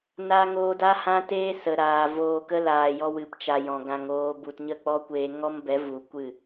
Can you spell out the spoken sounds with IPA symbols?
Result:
n a˧ ŋ oː˧ d a˦ h ã˦ t eː˦ s ə˨ ɾ aː˨ v oː˧ k ə˦ l aː˨ j ɔ˧ w ɨ˨ p t͡ʃ a˨ j ɔ̃˨ ɡ ã˧ ŋ oː˧ b u˨ t ɲ ə˦˨ k͡p ɔ˦ kʷ eː˧ ŋ ɔ˦ m b ɛ˨˦ v u˨ kʷ ɨ˦˨

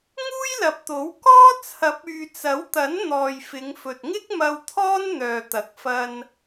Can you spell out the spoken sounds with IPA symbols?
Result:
ŋ uː˥ j l ɐ˨ p̚ t̪ o˨˥ w k ɔː˥ t͡sʰ ɐ˨˥ p̚ yː˨ t͡s ɐ˨˥ w t̪ ɐ˨˥ n n̪ ɔː˨ j f ɪ˨˧ ŋ f ɵ˨ t̚ ŋ ɪ˥ k̚ m ɐ˧ w t̪ʰ ɔː˥ n n̪ œː˨ t̪ ɐ˨˥ k̚ f ɐ˧ n

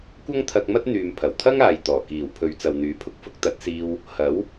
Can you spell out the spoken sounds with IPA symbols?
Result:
kʷ ɐ˥ ŋ t̪ʰ ɐ˧ k̚ m ɐ˥ t̚ n̪ yː˨ m pʰ ɐ˨˩ w t̪ʰ ɐ˥ ŋ aː˨ j t̪ ɔː˨˩ k iː˨˩ w pʰ ɵ˨˧ ɥ t͡s ɐ˨ w n̪ yː˨˥ pʰ ʊ˨ k̚ f ʊ˥ k̚ t̪ ɐ˨˥ t̚ s iː˧ w | h ɐ˨˥ w

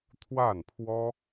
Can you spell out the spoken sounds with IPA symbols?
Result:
t̪ʰ w a˥˩ n pʰ w ɔ˥

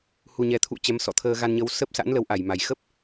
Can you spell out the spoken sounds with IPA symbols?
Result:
h u˨˩ ɲ ɛ˨˩ t̪ʰ ṵ˧˨ t͡ɕ ɛ˨˦ m s ɔ̰˧˨ t̪ʰ əː˧ ɣ a˧ n ɲ ə˨˦ w s ə˦˥ p̚ s a̰˧˥ n l ə˨˦ w ʔ a˧˩ j m a˨˩ j x ə˦˥ p̚

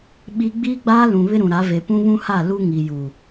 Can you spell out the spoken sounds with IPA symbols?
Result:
ɓ i˦ ɡ͡b iː˦ ɡ͡b aː˦ l ũ˨ β ɪ˦ ɾ ũ˨ ɾ a˨˦ v e˨ p ũ˦ β ũ˦ h a˦˨ l u˦ ŋ i˨ j u˨

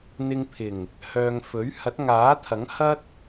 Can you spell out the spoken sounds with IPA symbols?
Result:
n̪ ɪ˧ ŋ pʰ ɪ˨˩ ŋ | h œː˧ ŋ f ɵ˨˥ ɥ h ɐ˨˥ t̚ ŋ aː˨˥ t̪ʰ ɐ˨˥ ŋ h ɐ˥ t̚

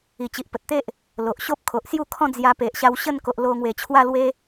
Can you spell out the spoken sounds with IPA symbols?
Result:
i˨˩ t͡ɕ i˨ ʔ p ə˨ t̚ t̪ e˦ ʔ | l o˨ ʔ ɕ o˦ p̚ kʰ o˨ ʔ s j u˥˧ kʰ ɔ̃˥˧ d͡z j a˧ p e˨ ʔ ɕ a˧ w ɕ ə˥˧ n k o˨ ʔ l o˧ ŋ w e˨˩ t͡ɕʰ w a˥˧ l w e˦

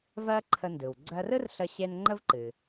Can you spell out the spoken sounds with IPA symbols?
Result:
v ɜ˥ ǃʰ ə˧ n d ɯ˩ w ɡ͡ǀ ɜ˧ r ɯ˥ r ɬ ə˧ ɕ e˧ n ŋ͡ǃ ə˥ v ǃ ɨ˩

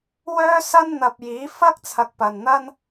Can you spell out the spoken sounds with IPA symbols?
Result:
w œː˥ s ɐ˥ n n̪ ɐ˧ p̚ j iː˨˥ f ɐ˥ k̚ t͡sʰ ɐ˨ k̚ p ɐ˨ n n̪ ɐ˥ n

